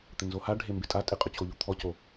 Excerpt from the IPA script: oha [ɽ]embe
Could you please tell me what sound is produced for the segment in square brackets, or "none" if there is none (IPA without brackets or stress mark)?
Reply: ɖʱ